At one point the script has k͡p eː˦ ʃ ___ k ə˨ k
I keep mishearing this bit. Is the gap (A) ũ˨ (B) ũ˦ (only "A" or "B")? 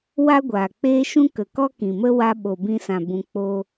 B